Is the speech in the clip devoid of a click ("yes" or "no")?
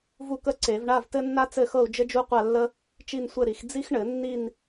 no